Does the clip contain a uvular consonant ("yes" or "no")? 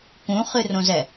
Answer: yes